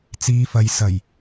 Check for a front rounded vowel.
absent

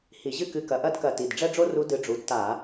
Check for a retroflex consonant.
present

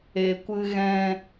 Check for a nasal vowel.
present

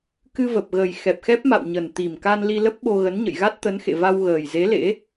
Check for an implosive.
present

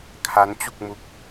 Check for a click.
absent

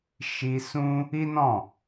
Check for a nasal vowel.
present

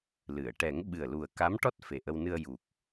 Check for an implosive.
present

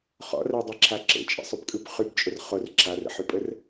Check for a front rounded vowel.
present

